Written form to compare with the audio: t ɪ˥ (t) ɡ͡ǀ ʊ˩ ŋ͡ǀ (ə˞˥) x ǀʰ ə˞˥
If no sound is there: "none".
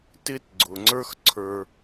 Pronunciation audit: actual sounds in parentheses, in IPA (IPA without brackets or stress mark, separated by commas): t, ə˞˥